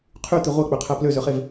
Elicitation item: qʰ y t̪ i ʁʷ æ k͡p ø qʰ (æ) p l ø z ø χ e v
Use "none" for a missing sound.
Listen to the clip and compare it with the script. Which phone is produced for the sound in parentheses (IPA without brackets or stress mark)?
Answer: æ